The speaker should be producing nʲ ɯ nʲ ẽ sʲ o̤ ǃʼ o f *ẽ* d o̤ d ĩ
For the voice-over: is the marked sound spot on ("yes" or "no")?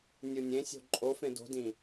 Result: yes